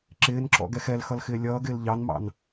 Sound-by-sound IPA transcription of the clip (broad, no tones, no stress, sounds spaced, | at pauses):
ǁ ɪː n ǁ ɔ̰ ɡ ɛ x ɛ l x ʌ l x ɪː lʲ ʌː ɡ ɪː l ʎ ɑ n m ɑ̰ n